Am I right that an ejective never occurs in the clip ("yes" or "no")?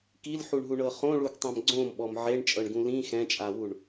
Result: no